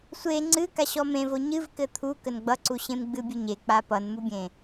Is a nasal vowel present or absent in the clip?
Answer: present